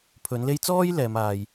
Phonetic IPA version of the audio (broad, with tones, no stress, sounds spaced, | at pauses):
pʰ ɵ˨˥ n l e˥ j t͡s ɔː˥ j l ɛː˨˧ m aː˨ j